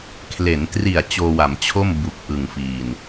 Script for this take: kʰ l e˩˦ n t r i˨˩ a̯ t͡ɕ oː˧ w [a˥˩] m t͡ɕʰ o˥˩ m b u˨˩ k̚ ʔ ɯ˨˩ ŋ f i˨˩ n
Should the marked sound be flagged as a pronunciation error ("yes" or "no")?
yes